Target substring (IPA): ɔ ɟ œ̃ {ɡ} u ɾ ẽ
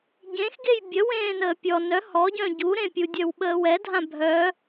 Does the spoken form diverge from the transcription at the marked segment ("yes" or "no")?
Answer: yes